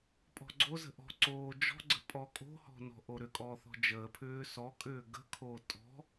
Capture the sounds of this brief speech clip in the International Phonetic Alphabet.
pʼɔ̤ɡ͡ǀozə̤ ʔɔ̤ ǀoːd͡ʒɔ̤ɡ͡ǀə̤ pʼɔkʼo̤hɔ̤ nɔ̤ʔoɾʏkʼɔː θɔ̤d͡ʒəːpʰʏː sɔkʼʏː ɡə̤kʰoː tʼɔ̤

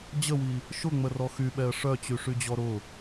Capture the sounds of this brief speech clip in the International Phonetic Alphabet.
d͡ʑəwi | ʃʊŋ͡mərɔ xyɓɛə̯ ʂœt͡ɕyʂyd͡ʑɔ ɾʊ

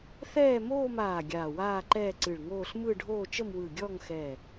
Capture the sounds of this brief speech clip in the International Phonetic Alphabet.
θɛː˥˧moː˥˧maː˧˩ ɡʲaː˧˩waː˥˧ǃɛː˥˧ ǀɨ˧˩ɭŋoː˥˧ɬ mɯ˥˧ ɖʱoː˥˧t͡ʃə˥˧mwɯ˧˩ ɡʲɔ˥˧ŋxɛ˧˩

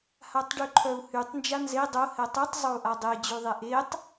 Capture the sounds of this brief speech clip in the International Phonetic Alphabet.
hatˤɖyǃʰœu̯hytˤ nd͡ʒanze dˤo hɛtˤytˤ zˤou̯ʔadˤe d͡ʑyðˤɛʔetˤ

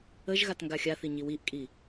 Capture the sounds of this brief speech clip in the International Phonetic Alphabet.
əʒɣat ŋɡaxʲaθi ɲiwiʔkʼi

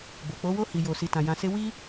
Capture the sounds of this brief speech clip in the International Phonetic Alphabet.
bo˨k͡po˨˦ wo˦ hi˧jo˧ si˧tã˧ jã˧se˦ wi˦

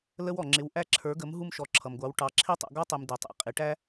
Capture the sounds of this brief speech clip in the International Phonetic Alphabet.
lə˦wɔ˩ŋ͡ǁɪ˩˥w ʔæ˦ǁʰə˞˩˥ɡə˩˥m ɦu˦mʃɔ˩˥ǁʰʌ˩mɡʷɑ˩˥w ʈɑ˩˧ǁʰi˦tˤṵ˩˧ ɡɔ˦tˤi˩m dɪ˩˧tˤḭ˩qʼɪ˩˧ ʈæ˦

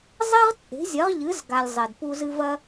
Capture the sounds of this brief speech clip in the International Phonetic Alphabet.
zˤe˥ʁt͡sʼe̤˩˥zʲɐ˩˥ʁʎɨ˩˥z ɡa˩lʲ zˤe˩dpu˧zɨ˧ vɐ˧

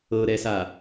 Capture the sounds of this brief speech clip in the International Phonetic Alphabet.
ɤɾɛsa

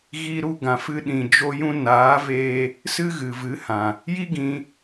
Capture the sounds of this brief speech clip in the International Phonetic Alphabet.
ɣi˧ ɾu˧ɡã˨fɨ˧ ɗĩ˨ d͡ʒo˧jũ˧naː˨˦veː˧ | sɨ˦ɣɨ˨vɨ˨˦hã˨ | ji˦ɡĩ˧

